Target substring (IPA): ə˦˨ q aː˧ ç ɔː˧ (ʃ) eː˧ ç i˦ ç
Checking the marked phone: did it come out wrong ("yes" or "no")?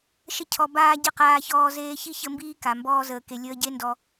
yes